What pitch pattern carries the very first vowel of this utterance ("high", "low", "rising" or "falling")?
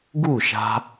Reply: falling